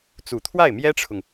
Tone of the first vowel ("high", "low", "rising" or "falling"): low